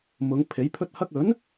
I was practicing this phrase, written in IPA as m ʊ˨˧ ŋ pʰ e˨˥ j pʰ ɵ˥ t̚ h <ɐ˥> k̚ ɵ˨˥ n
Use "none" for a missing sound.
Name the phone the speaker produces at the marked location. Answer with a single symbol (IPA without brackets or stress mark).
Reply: ɐ˥